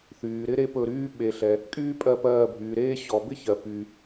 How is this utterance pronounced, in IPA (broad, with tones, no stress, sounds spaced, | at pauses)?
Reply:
θ yː˨ ɾ ɪ˥ ɾ e˥ p ɵ˦˨ ɾ yː˥ ɓ e˨ ɬ ɛ˨ | kʼ yː˥ pʼ ɜ˦˨ p ɜː˦˨ bʱ yː˨ ɾ eː˥ ɕ ɔ˨ b ɪ˥ ç ɜ˨ p y˨